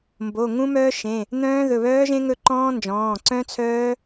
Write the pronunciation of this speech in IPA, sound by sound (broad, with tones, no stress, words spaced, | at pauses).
mbo˩˧˩ŋũ˦˥ mœː˦˥ʃẽ˩˧˩ | n̪œ̃ː˦˥ðɵ˩˧˩βœː˦˥ʒẽ˦˥ ŋɵ˦˥ǃɔ̃ː˦˥ nd͡ʒɔ̃ː˩˧˩ǀœ̃˦˥t͡sʰœː˦˥